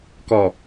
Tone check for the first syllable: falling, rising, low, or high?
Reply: low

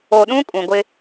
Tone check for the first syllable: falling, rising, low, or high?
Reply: low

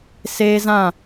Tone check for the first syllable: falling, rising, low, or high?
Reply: high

